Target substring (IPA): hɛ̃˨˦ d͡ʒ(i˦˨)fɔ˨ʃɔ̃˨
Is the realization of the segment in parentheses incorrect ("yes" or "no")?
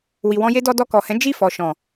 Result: no